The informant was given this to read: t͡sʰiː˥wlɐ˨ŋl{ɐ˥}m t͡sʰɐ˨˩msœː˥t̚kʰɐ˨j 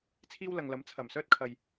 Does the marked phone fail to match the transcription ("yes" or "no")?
yes